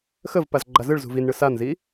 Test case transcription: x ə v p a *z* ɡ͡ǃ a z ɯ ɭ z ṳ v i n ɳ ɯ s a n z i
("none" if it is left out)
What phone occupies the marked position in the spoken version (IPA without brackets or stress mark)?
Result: z